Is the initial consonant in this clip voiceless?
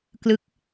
yes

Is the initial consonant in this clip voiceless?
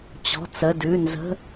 yes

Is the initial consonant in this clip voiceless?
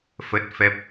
yes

